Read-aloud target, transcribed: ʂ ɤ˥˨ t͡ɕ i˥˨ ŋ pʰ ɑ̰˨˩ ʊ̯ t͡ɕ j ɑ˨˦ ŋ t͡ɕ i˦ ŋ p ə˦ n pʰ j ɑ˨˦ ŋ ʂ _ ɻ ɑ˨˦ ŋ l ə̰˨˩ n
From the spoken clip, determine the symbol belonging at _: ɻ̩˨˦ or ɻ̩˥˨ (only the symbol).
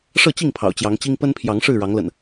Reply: ɻ̩˥˨